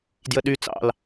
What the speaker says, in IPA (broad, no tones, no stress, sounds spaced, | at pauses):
d j ə ɗ y t͡s ɑ̰ l